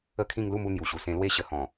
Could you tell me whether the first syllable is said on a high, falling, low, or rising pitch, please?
falling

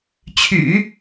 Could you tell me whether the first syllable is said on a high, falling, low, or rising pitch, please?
low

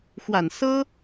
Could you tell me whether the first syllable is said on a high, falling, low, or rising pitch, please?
low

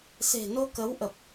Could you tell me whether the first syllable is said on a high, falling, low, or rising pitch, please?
low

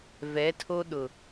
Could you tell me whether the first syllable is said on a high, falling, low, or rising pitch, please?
rising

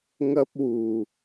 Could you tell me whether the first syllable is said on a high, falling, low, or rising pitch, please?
high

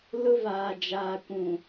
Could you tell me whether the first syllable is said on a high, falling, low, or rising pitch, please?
high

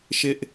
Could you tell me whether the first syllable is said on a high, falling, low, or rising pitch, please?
high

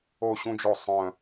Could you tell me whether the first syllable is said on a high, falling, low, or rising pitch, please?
falling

